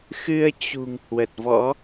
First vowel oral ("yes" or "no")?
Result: yes